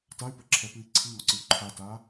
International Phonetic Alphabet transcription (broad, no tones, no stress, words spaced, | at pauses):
tay̯pəǁʰɛpɨi̯ ǀʰiŋɒǀɨu̯ ǃʰata